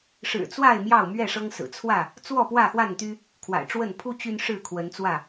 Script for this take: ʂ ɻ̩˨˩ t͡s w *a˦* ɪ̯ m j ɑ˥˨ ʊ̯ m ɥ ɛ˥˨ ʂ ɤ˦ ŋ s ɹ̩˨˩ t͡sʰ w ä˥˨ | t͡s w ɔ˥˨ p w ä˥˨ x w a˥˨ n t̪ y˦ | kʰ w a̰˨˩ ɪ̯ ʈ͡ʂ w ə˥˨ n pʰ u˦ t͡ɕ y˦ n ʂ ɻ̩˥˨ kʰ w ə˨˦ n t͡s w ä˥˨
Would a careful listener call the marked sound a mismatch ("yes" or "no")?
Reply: yes